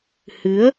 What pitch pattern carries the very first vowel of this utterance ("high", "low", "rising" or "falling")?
rising